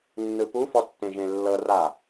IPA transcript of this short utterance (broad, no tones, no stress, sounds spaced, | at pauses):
nː ɯ p u f ɔ tː ẽ ʒ ẽ lː ɤ r a